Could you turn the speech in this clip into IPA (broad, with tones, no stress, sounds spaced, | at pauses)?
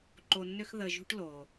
ǃ o˧ nː ø˥ x ð ə˧ ʒ ṳ˥ ʈ l o˩